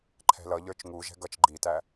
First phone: ǃʰ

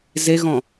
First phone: z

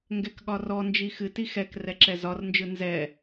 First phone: ŋ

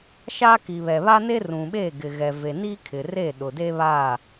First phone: ʃ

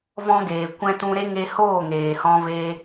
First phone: v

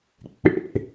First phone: k͡p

